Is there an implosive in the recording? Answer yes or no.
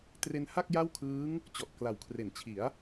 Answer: no